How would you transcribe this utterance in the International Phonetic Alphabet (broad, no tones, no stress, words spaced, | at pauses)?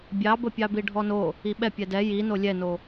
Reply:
bʲɑbə pʲɑbiɖʱɔno | iɓɛ pʲɛdɛ ji nolʲɛno